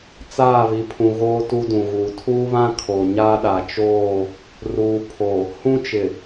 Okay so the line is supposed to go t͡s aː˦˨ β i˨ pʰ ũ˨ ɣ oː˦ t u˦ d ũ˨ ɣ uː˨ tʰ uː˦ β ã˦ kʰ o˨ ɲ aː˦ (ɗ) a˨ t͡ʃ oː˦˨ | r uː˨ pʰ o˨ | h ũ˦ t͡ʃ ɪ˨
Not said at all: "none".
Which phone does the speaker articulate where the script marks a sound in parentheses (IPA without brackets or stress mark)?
ɗ